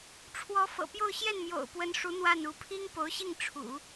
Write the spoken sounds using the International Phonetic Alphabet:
ʈ͡ʂʰ w ɔ˧˥ f ɤ̰˨˩ p j o˥˧ ʊ̯ ɕ j ɛ˥˩ n m j o̰˨˩ ʊ̯ p w ə˧˥ n ʂ u˧˥ n̪ w a˥˩ n u˧˥ pʰ i˥ ŋ p o˧˥ ʊ̯ ɕ i˥˩ ŋ ʈ͡ʂʰ ṵ˨˩˦

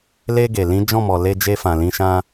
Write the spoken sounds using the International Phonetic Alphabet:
l e˧ ɡ e˨ l ĩ˨˦ d͡ʒ ɔ̃˦˨ m ɔ˨ l e˧ d͡ʒ e˧ f ã˨ l ĩ˧ ʃ ã˦

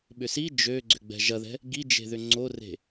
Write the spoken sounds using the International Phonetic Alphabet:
ɓ ʏ s i d͡ʒ ø ɡ͡ǀ ʏ ɡ͡b ɛ̤ ʒ ɐ ð ɛ̤ | ɡ i d͡ʒ e̤ ð ʏ ŋ͡ǀ o r e̤

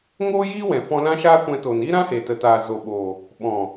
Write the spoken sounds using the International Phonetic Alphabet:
ŋ oː˦ j iː˦ w ɛ̃˨ f ɔ̃˧ l ã˦ ʃ aː˦ kʷ ɛ̃˧ t o˨ n iː˦ ɾ ã˦ h e˨ t ə˨ t aː˨ z o˨ ɓ o˨ | ɓ ɔ̃˨

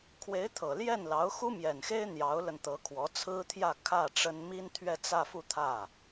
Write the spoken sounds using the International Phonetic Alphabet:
kʰ w e˧˥ ɪ̯ t̪ʰ ɤ˨˩ l j ɛ˥˩ n l ɑ˧˥ ʊ̯ x u˥ m j ɛ˨˩ n x e˥ ɪ̯ n̪ j ɑ˧˥ ʊ̯ l ə˧ n t̪ ɤ˧˥ kʰ w ɔ˧˥ t͡sʰ ɹ̩˥ t̪ʰ j ä˥˧ kʰ ä˥˩ ʈ͡ʂ ə˥ n m i˥ n t̪ʰ ɥ ɛ˥˧ t͡s ä˥˧ f u˥˧ t̪ʰ ä˥˩

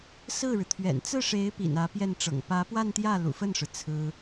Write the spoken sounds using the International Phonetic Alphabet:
s ɹ̩˥˩ ɻ ɻ̩˩ t̪ʰ ɥ ɛ̰˨˩ n t͡s ɹ̩˥˩ ʂ e˧˥ ɪ̯ p ḭ˨˩ n ä˧˥ p j ɛ˥˩ n ʈ͡ʂ ɤ̰˨˩ ŋ p ä˧˥ p w a˥˧ n t̪ j ä˥˩ l ṵ˨˩ f ə˥˩ n ʂ ɻ̩˩ t͡sʰ ɹ̩˥

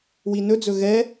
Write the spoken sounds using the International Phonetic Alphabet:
w i n ɵ d͡z ɵ ɣ ɛ

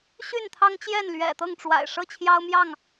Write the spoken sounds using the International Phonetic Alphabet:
ɕ y˥˨ n t̪ʰ ɑ˦ ŋ t͡ɕ j ɛ˥˨ n l ɥ ɛ̰˨˩ t̪ ɤ˥˨ ŋ ʈ͡ʂ w a̰˨˩ ɪ̯ ʂ ɤ˥˨ t͡ɕʰ j ɑ˦ ʊ̯ m j ɑ˥˨ ŋ

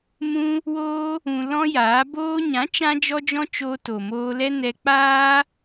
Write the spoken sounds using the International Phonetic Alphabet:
m ũ˦ | w oː˦ | ũ˧ l ɔ̃˦ j aː˨˦ b oː˧ ɲ ã˨˦ t͡ʃ ã˦ d͡ʒ ɔ˦ d͡ʒ ɔ̃˦ t͡ʃ oː˧ t o˨ m oː˧ l ɛ˦ n ɛ˧ k͡p aː˦

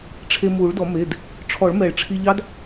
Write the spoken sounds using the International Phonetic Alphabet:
ʈ͡ʂʰ e˧ m u˨˩˦ ɭ d ɔ˨˩˦ m e˩˧˩ d | ʈ͡ʂʰ ɔ˨˩˦ ɭ m ɛ˨˩˦ ɭ ʈ͡ʂʰ i˧ ʎ ɑ˦˥ d

